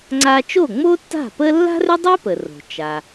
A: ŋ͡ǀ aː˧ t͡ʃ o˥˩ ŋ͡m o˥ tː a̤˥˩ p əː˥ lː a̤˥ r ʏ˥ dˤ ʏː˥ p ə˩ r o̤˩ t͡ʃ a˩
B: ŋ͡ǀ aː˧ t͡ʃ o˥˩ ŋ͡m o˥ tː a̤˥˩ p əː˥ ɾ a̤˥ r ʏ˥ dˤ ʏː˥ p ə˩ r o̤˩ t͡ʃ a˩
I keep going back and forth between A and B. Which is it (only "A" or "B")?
A